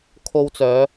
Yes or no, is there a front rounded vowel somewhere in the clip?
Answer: yes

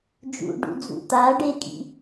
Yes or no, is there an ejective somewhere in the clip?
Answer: yes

